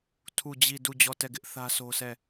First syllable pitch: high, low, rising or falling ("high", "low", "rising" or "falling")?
falling